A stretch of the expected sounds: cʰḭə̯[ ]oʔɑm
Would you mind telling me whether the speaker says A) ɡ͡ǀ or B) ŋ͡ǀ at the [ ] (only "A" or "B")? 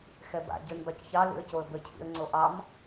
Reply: B